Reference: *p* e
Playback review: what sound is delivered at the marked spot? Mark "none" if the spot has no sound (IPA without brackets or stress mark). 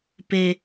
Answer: p